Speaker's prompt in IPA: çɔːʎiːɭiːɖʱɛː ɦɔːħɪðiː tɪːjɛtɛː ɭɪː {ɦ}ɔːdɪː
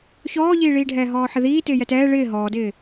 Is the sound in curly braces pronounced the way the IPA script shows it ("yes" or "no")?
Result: yes